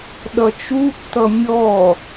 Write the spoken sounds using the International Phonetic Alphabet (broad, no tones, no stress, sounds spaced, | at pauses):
ɗ ʌ t͡ʃ u tː ʌ mʲ ɔ